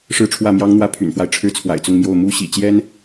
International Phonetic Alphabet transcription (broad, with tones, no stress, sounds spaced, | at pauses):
ʂ ɻ̩˥˧ ʈ͡ʂʰ w ä˥˩ m j ɑ˥ ŋ n̪ w ä˥˩ pʰ y̰˨˩ n f w a˦ ɪ̯ ʈ͡ʂʰ ɻ̩˥ t͡sʰ w a̰˨˩ ɪ̯ t͡s ʊ˥˧ ŋ m j o˥˩ ʊ̯ m u˥ ɕ ḭ˨˩ t͡ɕ j ɛ˥ n